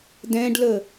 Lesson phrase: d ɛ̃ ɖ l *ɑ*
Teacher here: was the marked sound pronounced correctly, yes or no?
no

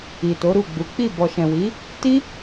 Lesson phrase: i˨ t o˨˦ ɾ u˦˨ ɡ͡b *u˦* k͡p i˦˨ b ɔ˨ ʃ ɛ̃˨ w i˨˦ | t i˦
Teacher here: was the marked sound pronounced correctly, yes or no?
no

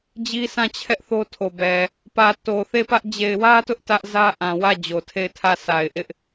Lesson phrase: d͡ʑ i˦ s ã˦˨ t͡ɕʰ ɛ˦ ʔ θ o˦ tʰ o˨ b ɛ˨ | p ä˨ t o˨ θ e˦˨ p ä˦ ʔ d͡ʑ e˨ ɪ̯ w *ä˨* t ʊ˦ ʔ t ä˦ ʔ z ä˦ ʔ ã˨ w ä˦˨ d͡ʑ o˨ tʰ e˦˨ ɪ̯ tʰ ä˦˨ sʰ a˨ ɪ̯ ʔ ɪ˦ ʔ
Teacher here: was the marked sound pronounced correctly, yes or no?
no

